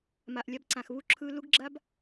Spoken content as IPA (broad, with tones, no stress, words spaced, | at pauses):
ma˩ʔlʲa˧bǀã˩xβu˧ ǁʰɯ˧lu˥ɡ ɡ͡ǁa˥b